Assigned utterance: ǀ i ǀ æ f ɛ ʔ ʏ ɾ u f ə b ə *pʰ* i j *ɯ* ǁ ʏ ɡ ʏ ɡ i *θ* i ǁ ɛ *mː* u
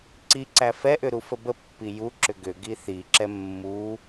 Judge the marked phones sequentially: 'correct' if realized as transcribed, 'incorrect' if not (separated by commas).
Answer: incorrect, incorrect, correct, correct